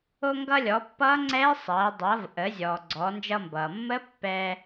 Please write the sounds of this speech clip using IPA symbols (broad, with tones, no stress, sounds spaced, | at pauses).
o˧ ŋ ɡ ʌ˧ lʲ ɔ˩˧ pː ʌː˦˥ ŋ͡ǀ ɛː˦˥ sˤ ɐː˩˧ dˤ ʌː˩˧ v ʔ ə˩˧ zʲ ɔː˩ ɡ͡ǀ ɔ˩˧ n d͡ʒ ʌ˧ m b ʌː˩ mː ə˦˥ pː ɛː˧